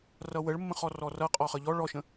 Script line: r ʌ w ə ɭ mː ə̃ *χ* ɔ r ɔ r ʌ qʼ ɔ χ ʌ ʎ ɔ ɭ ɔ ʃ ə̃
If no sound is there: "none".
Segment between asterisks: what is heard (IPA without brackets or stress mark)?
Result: χ